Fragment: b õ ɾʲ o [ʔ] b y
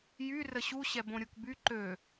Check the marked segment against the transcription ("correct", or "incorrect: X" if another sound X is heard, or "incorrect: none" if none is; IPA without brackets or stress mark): incorrect: k